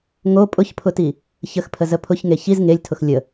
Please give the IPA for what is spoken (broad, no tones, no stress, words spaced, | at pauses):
ŋo pʼʊçpʰʊti | çəxpʰəzə pʰʊçŋe çiz ŋelʲtʰʊx lʲə